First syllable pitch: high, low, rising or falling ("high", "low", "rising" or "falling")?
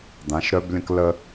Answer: rising